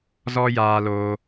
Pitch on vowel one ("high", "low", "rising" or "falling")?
high